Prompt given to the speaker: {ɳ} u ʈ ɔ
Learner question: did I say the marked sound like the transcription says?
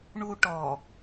yes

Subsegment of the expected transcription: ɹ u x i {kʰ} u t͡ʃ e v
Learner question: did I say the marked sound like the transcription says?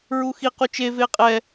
no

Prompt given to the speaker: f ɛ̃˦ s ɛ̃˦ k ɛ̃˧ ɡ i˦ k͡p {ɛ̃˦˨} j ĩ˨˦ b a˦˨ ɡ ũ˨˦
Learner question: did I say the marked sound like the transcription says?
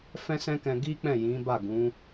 yes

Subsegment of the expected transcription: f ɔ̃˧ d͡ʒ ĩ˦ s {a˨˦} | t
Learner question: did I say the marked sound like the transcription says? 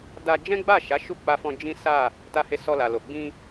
no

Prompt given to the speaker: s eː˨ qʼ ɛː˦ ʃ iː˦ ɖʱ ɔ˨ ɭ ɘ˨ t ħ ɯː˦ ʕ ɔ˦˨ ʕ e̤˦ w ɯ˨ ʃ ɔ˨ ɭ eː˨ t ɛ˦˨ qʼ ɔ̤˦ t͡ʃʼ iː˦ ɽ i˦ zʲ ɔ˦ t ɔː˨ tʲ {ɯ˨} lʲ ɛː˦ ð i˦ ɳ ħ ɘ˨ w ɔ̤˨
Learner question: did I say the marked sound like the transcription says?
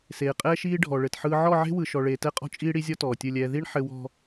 no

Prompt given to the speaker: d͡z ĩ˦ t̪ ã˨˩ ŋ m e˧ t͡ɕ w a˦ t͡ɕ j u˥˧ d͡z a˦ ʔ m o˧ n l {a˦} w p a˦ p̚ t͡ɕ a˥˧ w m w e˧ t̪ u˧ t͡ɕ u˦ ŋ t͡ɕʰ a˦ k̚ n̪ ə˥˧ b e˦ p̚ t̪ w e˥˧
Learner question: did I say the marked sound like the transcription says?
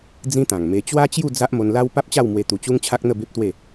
yes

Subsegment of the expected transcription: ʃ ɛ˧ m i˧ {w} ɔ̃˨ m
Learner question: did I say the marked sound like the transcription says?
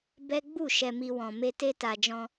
yes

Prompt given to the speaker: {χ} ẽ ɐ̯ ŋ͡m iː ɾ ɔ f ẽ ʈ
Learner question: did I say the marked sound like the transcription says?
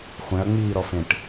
no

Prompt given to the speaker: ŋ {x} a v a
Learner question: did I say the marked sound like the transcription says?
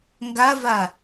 no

